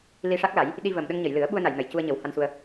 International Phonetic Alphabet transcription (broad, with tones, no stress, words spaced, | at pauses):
li˧ʂa˦˥k̚la˨˩˦j | ɗi˧vəː˨˩m ɗə˧ŋɲə˨˩˨jlɨ˨˩˦ə̯ɓu˧ə̯ na˨˩˨jnə˨˩˨j cu˧ə̯ɲə˨˩˦wha˧nsu˧ə̯